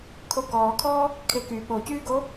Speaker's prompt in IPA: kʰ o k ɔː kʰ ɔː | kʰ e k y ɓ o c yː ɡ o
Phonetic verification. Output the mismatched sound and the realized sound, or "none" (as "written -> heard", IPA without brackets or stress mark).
none